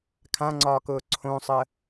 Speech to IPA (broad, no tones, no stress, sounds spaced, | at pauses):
kʰ ã ŋ͡ǀ ɒː k ʊː ǀʰ õ sˤ ə